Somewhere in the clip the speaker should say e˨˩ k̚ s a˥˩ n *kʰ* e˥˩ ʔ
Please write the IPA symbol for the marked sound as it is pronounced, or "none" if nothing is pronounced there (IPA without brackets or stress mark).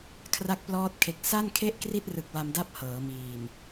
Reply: kʰ